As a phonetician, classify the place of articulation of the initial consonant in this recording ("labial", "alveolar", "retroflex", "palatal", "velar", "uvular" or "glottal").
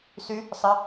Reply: alveolar